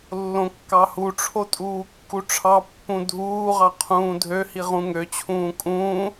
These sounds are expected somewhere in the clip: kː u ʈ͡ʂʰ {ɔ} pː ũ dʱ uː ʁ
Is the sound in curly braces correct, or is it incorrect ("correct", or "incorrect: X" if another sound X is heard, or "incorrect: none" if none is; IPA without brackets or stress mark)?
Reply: incorrect: ɑ